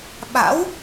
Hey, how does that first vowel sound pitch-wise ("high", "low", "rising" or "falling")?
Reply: rising